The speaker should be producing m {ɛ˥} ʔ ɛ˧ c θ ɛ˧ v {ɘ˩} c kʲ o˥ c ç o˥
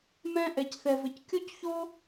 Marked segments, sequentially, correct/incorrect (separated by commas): incorrect, incorrect